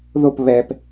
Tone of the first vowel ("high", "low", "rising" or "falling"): falling